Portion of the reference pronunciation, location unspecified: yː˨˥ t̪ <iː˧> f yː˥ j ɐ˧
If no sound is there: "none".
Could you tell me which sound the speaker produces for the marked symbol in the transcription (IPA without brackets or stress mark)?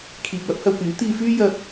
iː˧